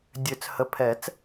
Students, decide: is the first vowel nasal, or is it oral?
oral